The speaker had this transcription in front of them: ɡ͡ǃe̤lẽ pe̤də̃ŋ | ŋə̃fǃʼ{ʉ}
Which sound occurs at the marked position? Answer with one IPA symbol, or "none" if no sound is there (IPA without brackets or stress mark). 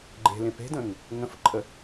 ə